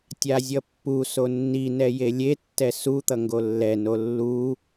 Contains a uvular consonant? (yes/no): no